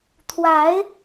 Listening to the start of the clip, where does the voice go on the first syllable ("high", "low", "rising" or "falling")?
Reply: rising